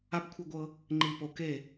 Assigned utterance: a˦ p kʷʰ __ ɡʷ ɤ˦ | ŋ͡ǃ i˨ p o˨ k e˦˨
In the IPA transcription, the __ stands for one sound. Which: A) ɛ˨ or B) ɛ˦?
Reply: B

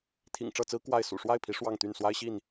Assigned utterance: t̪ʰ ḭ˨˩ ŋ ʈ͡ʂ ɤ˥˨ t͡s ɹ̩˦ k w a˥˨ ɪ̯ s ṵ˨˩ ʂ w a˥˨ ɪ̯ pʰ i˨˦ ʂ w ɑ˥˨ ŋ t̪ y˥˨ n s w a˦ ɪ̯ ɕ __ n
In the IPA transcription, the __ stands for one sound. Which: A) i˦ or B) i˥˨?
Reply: B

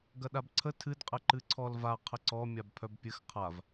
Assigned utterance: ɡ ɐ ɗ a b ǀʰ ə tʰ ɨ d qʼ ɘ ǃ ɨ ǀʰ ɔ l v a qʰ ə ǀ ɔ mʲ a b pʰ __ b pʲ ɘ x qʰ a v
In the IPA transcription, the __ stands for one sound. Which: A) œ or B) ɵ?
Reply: A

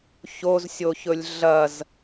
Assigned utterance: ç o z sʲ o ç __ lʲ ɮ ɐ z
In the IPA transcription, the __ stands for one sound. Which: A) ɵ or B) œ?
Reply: A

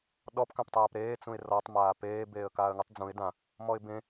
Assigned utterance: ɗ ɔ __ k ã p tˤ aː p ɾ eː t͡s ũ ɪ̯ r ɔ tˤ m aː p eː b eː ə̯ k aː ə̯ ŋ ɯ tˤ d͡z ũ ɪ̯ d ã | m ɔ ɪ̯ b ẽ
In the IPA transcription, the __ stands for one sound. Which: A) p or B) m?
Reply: A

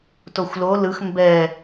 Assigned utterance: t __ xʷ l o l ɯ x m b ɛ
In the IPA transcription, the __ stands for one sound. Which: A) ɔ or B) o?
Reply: B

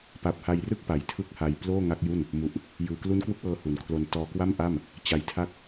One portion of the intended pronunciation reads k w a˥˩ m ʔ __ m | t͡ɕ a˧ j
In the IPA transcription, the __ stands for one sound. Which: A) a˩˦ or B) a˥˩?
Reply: B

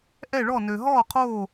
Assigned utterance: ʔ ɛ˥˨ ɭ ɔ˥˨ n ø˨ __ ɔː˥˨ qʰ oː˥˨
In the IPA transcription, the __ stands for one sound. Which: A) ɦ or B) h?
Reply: A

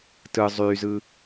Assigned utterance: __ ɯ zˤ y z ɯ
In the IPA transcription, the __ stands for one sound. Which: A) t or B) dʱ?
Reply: A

